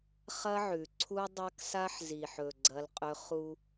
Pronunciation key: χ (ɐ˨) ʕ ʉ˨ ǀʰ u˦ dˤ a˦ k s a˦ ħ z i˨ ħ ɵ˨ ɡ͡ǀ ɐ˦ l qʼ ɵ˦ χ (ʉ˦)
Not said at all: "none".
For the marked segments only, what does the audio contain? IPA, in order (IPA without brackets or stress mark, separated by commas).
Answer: ɐ˦, u˦